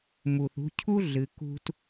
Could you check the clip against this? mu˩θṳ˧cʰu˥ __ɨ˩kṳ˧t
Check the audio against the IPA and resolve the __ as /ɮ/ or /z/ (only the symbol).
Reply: ɮ